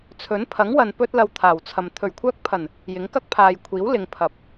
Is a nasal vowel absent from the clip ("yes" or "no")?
yes